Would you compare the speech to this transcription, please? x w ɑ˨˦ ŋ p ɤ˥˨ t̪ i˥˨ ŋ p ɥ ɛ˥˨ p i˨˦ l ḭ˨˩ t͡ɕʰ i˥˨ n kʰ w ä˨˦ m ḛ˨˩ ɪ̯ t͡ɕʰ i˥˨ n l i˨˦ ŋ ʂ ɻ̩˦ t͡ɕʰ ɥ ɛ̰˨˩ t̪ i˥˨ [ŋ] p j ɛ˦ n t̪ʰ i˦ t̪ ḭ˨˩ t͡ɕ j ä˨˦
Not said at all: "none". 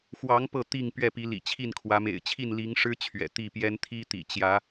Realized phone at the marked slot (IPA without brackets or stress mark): none